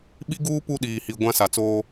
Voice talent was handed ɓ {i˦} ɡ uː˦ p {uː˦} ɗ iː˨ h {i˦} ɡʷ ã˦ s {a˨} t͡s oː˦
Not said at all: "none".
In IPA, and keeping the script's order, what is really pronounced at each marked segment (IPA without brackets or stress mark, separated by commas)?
i˦, u˦, i˨, a˨